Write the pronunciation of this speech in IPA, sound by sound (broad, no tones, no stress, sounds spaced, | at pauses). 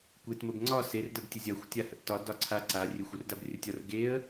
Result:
kʷ e t m ə b ŋ͡ǀ ɒ s e r d ə b tʲ ə zʲ a xʷ tʲ a h ə ʔ t ɒ d ɒ ǀʰ a ǀ a rʲ e xʷ u r d a b rʲ ə tʲ ɒ r ɡ e ə̯